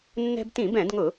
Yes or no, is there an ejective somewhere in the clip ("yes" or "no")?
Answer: no